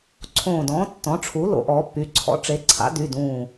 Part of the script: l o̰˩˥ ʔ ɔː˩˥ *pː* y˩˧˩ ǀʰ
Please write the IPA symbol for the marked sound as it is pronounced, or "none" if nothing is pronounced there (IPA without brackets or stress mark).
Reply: pː